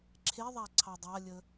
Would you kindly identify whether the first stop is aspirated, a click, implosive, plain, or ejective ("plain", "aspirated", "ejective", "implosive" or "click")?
click